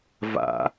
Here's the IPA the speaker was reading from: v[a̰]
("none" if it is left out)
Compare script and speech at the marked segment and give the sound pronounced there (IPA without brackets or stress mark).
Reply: a̰